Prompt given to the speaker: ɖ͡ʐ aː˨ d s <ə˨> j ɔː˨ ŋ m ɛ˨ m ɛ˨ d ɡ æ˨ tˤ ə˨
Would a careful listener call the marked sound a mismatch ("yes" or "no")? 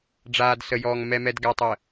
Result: no